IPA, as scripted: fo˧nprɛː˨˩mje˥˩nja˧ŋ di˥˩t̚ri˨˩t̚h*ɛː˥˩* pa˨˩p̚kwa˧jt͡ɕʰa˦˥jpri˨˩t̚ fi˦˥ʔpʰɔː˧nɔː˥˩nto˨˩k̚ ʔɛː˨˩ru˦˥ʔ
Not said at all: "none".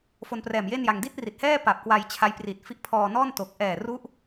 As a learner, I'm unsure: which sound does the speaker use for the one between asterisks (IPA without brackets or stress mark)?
ɛː˥˩